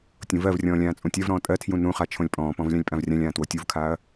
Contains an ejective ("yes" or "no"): yes